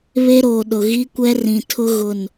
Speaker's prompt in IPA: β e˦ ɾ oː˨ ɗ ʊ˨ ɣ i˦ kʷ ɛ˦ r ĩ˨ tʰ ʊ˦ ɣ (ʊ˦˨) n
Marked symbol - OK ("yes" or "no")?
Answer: yes